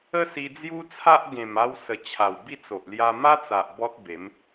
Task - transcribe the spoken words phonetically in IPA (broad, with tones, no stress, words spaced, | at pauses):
ə˦si˧d͡zju˦t͡sʰa˦ʔ ɡẽ˨˩ma˧w sə˨˩ t͡ɕʰa˨˩wbi˥˧t͡so˨ʔ lja˧ma˦t͡sa˨ʔ bɔ˦t̚be˨˦m